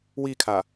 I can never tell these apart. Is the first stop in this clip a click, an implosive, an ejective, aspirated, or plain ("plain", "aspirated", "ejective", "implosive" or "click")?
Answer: aspirated